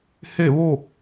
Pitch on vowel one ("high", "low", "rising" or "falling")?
falling